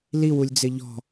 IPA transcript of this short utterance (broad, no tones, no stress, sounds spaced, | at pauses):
l i w u lʲ d͡z ɪ ʎ ɔ̤